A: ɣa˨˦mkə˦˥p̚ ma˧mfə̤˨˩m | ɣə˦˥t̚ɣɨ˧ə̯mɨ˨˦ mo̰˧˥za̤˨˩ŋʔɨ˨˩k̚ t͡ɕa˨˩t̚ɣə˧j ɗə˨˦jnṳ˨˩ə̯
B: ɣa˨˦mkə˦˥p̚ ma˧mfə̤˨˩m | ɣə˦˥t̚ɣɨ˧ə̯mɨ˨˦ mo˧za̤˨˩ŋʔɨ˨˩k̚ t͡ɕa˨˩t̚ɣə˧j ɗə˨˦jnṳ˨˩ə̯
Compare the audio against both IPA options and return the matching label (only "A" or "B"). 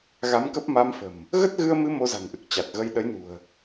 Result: B